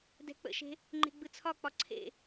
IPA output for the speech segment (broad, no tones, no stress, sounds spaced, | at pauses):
d ɛ̤ k͡p ə̰ ʃ e̤ | ŋ͡ǃ e̤ ɡ͡b ɯ t͡sʰ ɒ k͡p ɒ ǀʰ ḛ